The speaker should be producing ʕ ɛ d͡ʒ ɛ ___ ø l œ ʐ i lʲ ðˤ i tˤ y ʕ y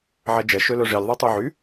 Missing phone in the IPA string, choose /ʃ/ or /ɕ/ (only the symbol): ʃ